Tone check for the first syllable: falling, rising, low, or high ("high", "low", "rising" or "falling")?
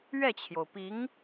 falling